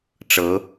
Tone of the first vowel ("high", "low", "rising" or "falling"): rising